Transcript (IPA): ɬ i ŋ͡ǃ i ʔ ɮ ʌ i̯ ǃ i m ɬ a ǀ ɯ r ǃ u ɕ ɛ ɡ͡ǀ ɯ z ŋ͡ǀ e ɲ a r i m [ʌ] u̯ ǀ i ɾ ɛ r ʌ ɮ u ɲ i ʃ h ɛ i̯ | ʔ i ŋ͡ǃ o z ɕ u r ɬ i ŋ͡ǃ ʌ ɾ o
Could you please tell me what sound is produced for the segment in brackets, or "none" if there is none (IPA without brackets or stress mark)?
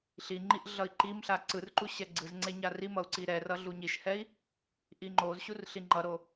ʌ